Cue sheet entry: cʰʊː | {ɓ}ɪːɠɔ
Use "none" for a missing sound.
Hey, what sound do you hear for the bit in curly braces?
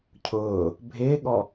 bʱ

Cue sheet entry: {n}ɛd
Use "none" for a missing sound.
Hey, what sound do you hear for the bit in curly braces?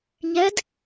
ɲ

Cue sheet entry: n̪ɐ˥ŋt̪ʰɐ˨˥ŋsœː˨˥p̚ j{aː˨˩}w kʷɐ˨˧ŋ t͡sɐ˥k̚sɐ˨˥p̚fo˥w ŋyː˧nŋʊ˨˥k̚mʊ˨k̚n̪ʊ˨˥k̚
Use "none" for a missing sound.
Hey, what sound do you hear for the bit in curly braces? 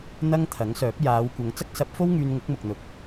aː˨˧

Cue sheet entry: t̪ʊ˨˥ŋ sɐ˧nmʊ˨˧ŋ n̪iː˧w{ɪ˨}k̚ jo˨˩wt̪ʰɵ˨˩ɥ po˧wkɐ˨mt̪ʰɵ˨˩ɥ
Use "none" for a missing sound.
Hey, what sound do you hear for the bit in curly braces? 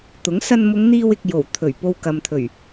ɪ˨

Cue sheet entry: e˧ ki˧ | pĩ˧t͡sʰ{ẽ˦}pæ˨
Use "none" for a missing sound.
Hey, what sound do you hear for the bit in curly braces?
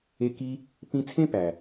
ẽ˦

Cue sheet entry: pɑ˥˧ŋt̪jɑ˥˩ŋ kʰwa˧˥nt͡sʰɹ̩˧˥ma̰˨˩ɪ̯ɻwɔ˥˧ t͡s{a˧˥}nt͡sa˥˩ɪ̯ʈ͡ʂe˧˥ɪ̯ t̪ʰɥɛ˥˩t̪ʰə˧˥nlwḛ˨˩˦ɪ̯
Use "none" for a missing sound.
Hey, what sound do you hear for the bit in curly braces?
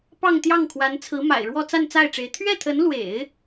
a˥˧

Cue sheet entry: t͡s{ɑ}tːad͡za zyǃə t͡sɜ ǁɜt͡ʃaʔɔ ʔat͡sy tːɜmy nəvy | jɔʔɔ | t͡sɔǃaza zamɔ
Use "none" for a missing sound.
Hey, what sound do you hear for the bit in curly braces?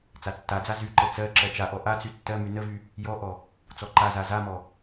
a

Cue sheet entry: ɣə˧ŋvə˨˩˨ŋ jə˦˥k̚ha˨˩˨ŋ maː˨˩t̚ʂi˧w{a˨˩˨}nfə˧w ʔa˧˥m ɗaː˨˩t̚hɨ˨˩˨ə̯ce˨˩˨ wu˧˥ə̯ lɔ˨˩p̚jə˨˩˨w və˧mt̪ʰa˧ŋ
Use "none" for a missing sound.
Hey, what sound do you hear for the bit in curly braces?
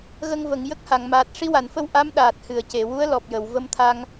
a˨˩˨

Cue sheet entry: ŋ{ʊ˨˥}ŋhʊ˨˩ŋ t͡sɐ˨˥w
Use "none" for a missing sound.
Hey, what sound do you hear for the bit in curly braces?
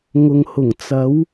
ʊ˨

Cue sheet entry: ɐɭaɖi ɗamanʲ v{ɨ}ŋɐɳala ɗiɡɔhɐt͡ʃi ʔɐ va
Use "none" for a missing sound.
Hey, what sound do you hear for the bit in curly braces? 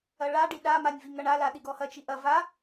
i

